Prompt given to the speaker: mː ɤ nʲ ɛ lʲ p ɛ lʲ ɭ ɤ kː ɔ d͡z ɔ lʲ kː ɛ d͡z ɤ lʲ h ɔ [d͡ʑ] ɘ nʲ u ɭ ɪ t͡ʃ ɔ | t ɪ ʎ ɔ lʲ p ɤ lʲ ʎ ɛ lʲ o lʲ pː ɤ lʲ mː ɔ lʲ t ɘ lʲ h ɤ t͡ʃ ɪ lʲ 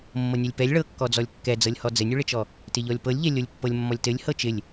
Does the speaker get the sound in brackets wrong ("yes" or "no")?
yes